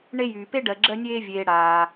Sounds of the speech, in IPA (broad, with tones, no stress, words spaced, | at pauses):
ɳe˦jyː˩pe˥ ɖɜ˨ɡ͡ǁɜ˦nʲeː˦vʲeː˨ ɽaː˩